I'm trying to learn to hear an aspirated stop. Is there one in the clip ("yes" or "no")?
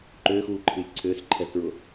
yes